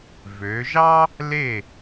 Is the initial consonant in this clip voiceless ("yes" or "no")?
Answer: no